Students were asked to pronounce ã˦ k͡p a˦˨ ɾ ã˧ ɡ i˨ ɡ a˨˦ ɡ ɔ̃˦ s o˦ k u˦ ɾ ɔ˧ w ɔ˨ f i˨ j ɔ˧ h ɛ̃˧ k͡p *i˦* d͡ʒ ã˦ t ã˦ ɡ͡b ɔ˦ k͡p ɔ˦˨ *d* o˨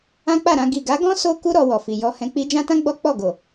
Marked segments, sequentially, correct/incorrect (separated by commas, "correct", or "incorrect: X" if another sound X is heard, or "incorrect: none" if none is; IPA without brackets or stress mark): correct, incorrect: ɡ